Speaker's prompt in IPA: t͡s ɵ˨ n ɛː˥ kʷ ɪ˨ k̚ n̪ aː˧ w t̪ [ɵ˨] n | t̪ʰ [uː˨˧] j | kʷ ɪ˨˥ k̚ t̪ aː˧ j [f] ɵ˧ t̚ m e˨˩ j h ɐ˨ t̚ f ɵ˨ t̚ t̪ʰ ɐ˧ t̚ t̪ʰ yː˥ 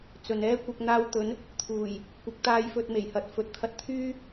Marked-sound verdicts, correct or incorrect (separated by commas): incorrect, incorrect, correct